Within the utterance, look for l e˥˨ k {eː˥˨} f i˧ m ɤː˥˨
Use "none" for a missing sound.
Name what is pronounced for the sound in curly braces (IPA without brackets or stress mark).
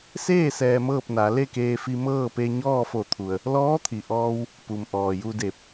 eː˧